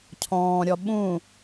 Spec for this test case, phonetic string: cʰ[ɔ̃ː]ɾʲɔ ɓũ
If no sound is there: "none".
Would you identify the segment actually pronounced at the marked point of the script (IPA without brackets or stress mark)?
ɔ̃ː